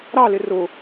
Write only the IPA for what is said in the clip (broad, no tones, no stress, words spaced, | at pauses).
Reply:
ɾɑlɪ rʊ